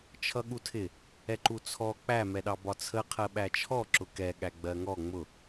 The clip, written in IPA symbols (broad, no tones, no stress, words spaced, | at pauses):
t͡ʃʰʌɠutʰɪ | ɛǃut͡sʰɔ k͡pæ mɛɗɑbɒt͡sʰə qʰɜɓæt͡ʃʰɔ ǁʊkɛ ɠæɡ͡bɜŋɔ ŋ͡mʊ